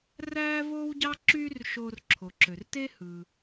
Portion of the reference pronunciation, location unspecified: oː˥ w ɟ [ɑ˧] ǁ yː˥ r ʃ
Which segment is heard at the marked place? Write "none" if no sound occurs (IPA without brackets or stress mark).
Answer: ɑ˥